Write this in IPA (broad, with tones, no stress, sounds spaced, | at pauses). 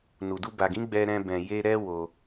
n u˨ d u˧ b a˨ ɡ ĩ˨˦ ɡ͡b ɛ˧ ɾ ɛ̃˧ b ɛ̃˨ j e˧ ɾ ɛ˦ w o˧